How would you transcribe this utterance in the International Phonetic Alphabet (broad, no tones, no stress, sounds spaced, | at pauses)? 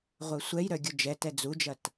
ʁʷ œ sʷ ɛ j ɾ œ ɡʲ ʊ d͡ʒ ɛ t ɛ d͡z u d͡ʒ ɐ t